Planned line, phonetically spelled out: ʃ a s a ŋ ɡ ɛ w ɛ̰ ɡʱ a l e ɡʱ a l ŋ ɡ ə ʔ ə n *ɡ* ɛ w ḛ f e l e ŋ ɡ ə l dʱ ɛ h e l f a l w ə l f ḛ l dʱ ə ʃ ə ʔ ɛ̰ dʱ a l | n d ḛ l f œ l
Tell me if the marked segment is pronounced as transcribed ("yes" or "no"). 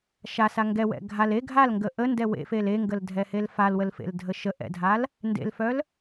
no